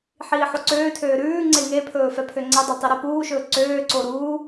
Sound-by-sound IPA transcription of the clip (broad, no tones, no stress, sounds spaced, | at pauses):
ħ iː ħ o ǀ øː tʰ øː ɾ ʉː ŋ͡ǀ e ŋ e pʰ ɵː f ɛ pʰ ø ŋ͡ǀ e dˤ ø tˤ i ɾ ɛ p uː ʃ ɵː ǀ øː ǀ o ɾ uː